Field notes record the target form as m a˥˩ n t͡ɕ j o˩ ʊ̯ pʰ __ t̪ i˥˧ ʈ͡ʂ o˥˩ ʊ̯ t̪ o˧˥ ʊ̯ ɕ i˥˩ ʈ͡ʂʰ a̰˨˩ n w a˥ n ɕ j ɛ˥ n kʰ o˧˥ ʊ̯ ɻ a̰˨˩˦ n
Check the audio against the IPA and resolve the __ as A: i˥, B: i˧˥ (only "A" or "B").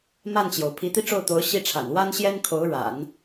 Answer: B